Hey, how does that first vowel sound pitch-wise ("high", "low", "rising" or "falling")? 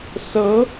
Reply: rising